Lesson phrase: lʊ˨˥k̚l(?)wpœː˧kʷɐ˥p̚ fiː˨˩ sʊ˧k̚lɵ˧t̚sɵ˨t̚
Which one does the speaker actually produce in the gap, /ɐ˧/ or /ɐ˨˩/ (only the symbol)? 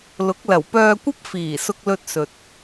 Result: ɐ˨˩